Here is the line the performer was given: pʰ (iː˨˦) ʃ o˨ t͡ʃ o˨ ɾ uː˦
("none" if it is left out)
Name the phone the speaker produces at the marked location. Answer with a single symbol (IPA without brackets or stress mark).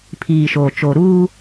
iː˨